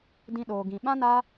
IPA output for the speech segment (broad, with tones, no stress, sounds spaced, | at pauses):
d ĩ˧ ɗ oː˨ ɡ ĩ˨ ɓ ã˧ n a˧